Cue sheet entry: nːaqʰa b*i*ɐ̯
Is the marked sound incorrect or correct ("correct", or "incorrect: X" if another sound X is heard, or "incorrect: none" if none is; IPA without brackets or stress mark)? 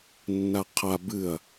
incorrect: ɨ